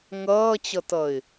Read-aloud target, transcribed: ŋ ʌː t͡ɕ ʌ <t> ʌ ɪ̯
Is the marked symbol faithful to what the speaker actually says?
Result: yes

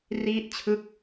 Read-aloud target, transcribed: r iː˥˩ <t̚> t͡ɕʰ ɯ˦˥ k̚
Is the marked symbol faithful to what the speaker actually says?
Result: yes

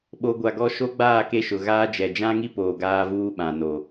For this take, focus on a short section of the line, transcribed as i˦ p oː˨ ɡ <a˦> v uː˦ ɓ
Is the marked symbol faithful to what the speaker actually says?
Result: no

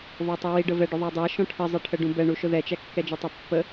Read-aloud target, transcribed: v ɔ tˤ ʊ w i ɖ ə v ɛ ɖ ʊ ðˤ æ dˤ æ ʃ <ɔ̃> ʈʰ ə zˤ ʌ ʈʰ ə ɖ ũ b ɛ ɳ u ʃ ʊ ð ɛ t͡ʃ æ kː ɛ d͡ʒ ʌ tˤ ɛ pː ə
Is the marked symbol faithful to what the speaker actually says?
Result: yes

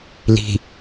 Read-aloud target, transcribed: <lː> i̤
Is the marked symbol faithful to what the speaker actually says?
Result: no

